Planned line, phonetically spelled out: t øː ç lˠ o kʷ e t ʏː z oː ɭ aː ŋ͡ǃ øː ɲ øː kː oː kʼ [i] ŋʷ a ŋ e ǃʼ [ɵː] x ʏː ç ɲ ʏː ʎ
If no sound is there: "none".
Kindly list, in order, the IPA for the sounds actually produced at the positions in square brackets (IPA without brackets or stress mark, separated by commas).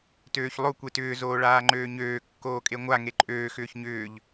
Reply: e, øː